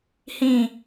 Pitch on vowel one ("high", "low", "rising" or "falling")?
falling